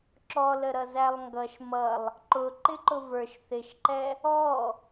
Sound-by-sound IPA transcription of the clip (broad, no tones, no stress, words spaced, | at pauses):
ǁɔləɾʌ zælˠŋɡʌʃ mʌlˠ | ǃʊ ǃɪǃʊvə˞ʃ θɪʃǃɛ | ɔ